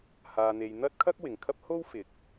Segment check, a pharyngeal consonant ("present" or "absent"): absent